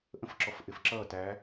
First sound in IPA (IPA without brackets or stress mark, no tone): ʔ